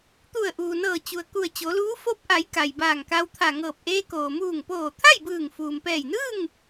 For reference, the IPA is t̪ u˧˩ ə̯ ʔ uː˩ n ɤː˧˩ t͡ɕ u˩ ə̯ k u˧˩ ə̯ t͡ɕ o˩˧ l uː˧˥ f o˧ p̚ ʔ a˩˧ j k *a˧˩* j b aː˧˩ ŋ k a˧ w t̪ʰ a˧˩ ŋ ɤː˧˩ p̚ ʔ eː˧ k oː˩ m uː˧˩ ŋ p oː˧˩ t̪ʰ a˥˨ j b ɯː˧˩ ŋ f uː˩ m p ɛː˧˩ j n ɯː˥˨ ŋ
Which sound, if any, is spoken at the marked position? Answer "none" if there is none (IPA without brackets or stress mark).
a˩